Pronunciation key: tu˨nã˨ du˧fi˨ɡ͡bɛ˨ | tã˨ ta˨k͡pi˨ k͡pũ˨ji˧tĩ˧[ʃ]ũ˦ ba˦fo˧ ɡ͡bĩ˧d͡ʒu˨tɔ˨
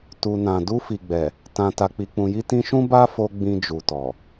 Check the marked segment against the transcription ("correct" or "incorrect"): correct